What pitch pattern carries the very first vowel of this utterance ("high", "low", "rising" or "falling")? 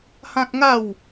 high